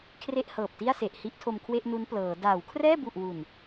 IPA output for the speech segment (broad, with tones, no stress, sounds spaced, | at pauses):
kʰ r e˥˩ ʔ h ɤː˨˩ p̚ t i˥˩ a̯ s e˨˩ ʔ h i˦˥ ʔ tʰ o˧ m kʰ w e˥˩ ʔ n u˦˥ n p l ɤː˩˦ d aː˩˦ w kʰ r ɛː˥˩ b u˨˩ ʔ w u˨˩ n